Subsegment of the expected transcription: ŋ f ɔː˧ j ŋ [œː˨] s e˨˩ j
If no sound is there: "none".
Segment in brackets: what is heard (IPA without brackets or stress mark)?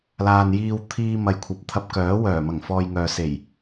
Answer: œː˨